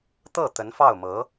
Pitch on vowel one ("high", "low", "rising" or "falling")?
falling